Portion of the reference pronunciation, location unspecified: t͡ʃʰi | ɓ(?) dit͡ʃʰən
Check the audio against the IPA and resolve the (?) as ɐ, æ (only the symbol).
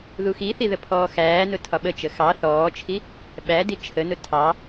æ